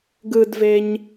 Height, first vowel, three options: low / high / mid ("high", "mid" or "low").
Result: high